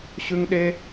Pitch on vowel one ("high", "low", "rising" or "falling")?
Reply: high